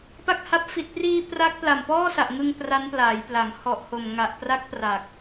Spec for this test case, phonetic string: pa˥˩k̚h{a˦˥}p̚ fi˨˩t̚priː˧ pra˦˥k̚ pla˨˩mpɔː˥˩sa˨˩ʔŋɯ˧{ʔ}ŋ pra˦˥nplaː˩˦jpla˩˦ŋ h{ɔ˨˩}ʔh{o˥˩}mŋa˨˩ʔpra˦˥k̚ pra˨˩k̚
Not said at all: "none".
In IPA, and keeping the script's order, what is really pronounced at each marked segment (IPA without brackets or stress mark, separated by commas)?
a˦˥, none, ɔ˨˩, o˨˩